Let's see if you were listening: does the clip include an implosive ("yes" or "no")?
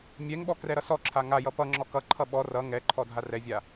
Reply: yes